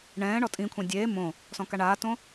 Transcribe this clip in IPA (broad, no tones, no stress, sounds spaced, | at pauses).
ɳ ɛ̃ː ɳ ɔ tʼ ĩ kʷʰ ẽ dʲ eː m õ | s ɔ̃ k a ɳ aː t õ